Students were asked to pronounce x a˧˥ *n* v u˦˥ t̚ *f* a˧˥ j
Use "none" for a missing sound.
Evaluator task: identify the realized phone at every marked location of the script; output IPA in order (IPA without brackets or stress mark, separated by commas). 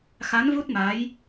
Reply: n, m